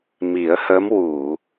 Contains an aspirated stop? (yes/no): no